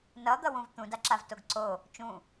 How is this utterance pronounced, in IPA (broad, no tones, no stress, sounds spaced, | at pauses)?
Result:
n ʌ d̪ ʌ w ũ v t̪ ũ d a ǁ a v t o ɡ ǀ o | t͡ʃ ũ